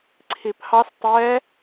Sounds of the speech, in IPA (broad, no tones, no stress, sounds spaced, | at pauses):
ǀʰ i pʰ ɑ s tˤ ɛ